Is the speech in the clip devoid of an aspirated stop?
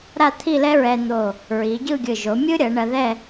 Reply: no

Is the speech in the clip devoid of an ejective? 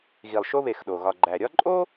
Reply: no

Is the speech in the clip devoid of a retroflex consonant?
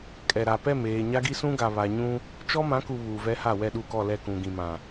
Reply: yes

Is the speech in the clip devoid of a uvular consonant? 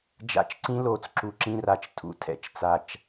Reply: yes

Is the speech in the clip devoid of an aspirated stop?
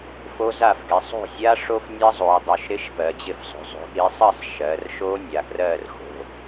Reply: yes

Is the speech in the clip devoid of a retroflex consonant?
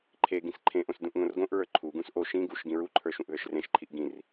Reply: yes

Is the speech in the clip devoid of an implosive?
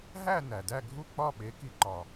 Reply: no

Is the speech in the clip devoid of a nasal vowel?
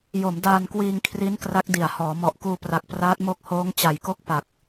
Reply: yes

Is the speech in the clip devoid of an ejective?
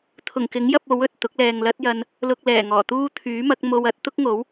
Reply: yes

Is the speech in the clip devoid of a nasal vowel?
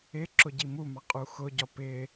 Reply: yes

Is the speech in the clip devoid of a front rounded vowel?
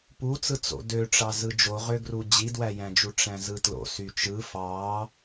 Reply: no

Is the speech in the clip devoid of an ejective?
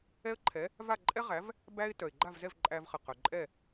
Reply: no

